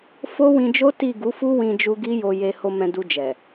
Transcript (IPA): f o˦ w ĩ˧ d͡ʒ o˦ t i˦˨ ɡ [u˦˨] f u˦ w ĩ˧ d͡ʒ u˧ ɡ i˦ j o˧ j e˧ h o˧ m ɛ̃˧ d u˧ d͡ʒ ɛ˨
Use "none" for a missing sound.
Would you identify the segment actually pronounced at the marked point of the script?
u˨˦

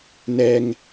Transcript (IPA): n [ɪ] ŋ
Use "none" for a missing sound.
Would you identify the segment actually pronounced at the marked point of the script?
ɛ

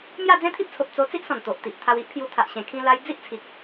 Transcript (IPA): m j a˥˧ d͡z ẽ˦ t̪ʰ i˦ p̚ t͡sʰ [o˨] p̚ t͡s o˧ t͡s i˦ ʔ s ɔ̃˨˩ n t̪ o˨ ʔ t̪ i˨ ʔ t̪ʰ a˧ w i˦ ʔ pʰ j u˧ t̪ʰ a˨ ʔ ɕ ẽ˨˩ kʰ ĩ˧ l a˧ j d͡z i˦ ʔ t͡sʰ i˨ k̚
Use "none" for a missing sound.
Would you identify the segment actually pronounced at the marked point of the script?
o˨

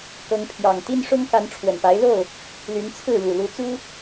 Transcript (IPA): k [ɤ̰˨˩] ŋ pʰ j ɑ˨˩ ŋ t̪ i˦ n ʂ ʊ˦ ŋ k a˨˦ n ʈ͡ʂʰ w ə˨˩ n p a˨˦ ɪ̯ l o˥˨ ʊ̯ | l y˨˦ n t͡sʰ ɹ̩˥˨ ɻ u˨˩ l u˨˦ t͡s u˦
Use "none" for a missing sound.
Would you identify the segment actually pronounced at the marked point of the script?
ɤ˨˦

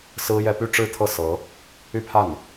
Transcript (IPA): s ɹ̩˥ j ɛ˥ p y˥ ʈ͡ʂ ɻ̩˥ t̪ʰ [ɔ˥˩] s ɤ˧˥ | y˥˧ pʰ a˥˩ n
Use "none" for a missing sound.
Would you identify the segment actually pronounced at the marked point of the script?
ɤ˥˩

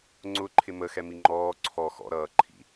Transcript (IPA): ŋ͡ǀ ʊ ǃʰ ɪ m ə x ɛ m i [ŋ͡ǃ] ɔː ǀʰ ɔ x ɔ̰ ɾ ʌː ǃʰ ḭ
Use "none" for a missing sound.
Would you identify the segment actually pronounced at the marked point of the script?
ŋ͡ǃ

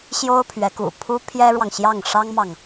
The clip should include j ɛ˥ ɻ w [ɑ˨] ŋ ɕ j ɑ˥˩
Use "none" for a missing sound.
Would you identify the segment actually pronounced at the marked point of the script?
ɑ˨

